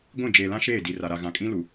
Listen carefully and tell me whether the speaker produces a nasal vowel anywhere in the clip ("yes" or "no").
yes